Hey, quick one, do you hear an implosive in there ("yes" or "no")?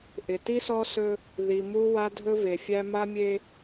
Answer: no